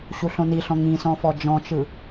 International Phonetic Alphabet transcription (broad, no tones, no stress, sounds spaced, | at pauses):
ɕ u ɬ õ n i ɬ ɔ̃ ŋ ĩ s ɔ̃ f ɔ d͡ʒ ɔ̃ t͡ʃ ɯ